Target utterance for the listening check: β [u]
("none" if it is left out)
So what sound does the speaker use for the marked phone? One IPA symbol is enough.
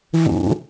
ṵ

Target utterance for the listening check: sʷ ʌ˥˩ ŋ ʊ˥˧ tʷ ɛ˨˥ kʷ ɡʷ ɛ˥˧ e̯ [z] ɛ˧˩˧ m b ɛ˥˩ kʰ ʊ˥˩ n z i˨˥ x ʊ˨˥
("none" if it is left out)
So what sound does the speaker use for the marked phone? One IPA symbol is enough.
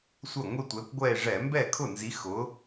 ʐ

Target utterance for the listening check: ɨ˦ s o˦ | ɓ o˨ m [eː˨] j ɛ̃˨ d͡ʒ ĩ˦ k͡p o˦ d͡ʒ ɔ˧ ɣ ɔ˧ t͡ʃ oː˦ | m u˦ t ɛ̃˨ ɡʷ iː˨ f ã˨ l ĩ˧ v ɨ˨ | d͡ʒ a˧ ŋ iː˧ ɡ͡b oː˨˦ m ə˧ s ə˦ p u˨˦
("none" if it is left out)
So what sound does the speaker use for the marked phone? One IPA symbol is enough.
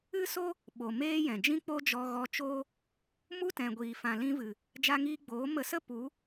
eː˦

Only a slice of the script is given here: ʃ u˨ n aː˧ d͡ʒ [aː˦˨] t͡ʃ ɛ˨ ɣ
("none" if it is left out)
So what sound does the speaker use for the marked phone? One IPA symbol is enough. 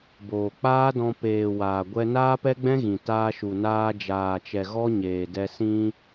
aː˨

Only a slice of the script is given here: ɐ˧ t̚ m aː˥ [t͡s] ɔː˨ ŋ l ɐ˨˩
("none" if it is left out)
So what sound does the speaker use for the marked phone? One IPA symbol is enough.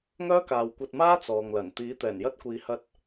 t͡s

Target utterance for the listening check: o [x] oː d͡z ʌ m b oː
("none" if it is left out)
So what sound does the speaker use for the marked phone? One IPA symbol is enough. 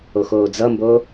x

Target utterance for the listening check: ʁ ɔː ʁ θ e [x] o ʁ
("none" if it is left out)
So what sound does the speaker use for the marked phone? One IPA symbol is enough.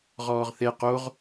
q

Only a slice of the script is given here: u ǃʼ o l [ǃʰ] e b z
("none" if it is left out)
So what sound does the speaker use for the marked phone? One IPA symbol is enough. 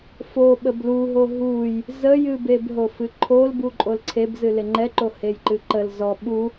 ǀʰ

